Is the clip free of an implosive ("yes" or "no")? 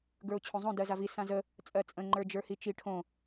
yes